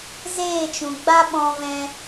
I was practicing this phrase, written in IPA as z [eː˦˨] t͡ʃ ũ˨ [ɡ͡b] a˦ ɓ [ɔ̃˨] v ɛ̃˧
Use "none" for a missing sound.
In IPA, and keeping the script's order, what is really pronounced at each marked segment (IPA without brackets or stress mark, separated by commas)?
eː˦˨, ɡ͡b, ɔ̃˧